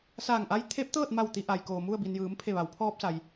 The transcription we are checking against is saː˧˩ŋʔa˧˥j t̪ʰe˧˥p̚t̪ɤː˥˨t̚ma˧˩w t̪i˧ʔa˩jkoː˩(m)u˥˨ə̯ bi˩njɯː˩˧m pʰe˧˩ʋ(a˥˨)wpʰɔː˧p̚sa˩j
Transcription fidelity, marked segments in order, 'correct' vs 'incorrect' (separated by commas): correct, incorrect